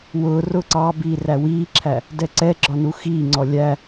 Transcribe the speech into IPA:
w ʊː r ʊː ǀ ɑ b iː r æ w iː ǁʰ æ | d ɛ ǀ ɛ ɡ͡ǁ ɒ n u x iː ŋ͡ǀ ɔ lʲ æ

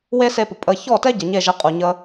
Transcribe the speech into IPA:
w e˦ s e˧ p ʊ˨ pʼ ə˧ ç ɔ˦˨ t ɛ˦ ɟ ə˨ ɲ e˦˨ ʒ e˧ qʼ u˨ ɲ ə˧

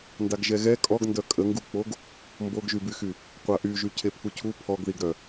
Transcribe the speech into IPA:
n d a ɡ ʒ ɛ ɣ ɛ kʼ ɔ ɡ n d œ kʼ ə ŋ ɡ u k͡p o ɡ | m b o ɡ ʒ y b y x y | qʷ a ʔ y ʒ y cʰ e pʰ u cʰ u pʰ ɔ ɡ ð i ɡ ɾ œ

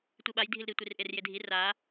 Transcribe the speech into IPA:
tʷ i ɓ a j dʱ i l ɾ i tʷ i r ʔ e r j e dʱ i r a

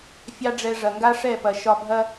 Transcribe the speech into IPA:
fʲ ɑ˦ ɖ͡ʐ ɛ˧ ʐ ɐ˨ ŋ ɡ a˦ ʂ ɛ˦˨ p ɐ˨ ʃ ɒ˧ bʱ ɐ˦

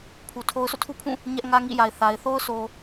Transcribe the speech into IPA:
pʰ u˨ tʰ o˦ ʊ̯ sʰ o̰˦˨ tʰ u˦ pʰ ũ˦˨ | ɲ ɛ˦ ʔ ŋ ä˦ ŋ ḭ˦˨ j a˨ ɪ̯ θ a˨ ɪ̯ θ o˦ ʊ̯ sʰ o˨

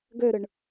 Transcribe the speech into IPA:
ɡ ø ɾ ɯ ɳ

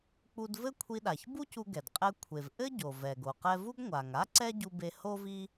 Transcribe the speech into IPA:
k͡p u˧ d v ɘ˥ kʷʰ i˧ ɗ a˩ ç b u˥ c u˧ ɡ ɛ˩ d qʼ ɛ˧ kʷʰ e˩ v ʔ ɘ˥ ɟ o˩ v ɛ˩ ɡ o˩ q ɛ˧ v u˥ ɡ ŋʷ a˩ ŋ a˥ ǀ ɛ˥ ɟ u˧ b e˧ h o˥ v i˥

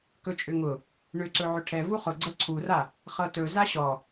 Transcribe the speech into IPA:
k ɵ t͡ʃʼ ʏ ŋ ʊ | ɳ ʏ ǀ ɵ ʕ ʏ ʈʰ ɛ v u χ ʊ ɡ͡ǀ ɤ ǀʰ u r a | χ ɤ t ɵ z a ɕ ɔ

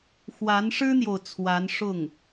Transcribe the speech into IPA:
x w a˧˥ n ʂ ɻ̩˥ n̪ j o˨ ʊ̯ t͡sʰ w a˧˥ n ʂ ʊ˥˩ ŋ

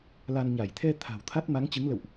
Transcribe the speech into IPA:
l a˧ n ɲ a˧˩ j t̪ʰ ɛ˧ t̪ʰ a̤˨˩ w t̪ʰ a˦˥ t̚ m a˨˦ ŋ t͡ɕ ɨ˨˦ ŋ l ə̰˧˨ w ʔ

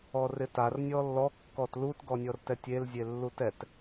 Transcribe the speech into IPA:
ɔ r ɪ t a r nʲ ɔ lː ɔ kː ɔ t l u t ɡ ɔ nʲ ɔ r t ɛ tʲ e l zʲ e lː u t ɛ t

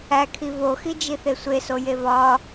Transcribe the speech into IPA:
æ kʰ i v o x i d͡ʒ i θ e sʷ e s o j e v ɒ

